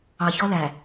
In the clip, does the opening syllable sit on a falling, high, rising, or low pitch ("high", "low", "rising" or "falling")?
low